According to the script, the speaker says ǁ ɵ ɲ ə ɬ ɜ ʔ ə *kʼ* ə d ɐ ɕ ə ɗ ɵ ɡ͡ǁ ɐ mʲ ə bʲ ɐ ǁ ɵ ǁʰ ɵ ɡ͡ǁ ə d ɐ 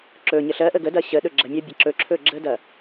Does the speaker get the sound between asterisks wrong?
yes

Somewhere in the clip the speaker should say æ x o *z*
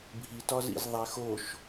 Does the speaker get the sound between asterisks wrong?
yes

